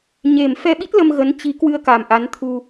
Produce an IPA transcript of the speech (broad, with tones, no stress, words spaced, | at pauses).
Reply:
ɲe˨˩mfɛ˧ɓi˦˥t̚ lə˧mɣə˨˦nt͡ɕi˨˦ kwɨ˧ə̯ka˨˩mʔa˨˦n t̪ʰu˧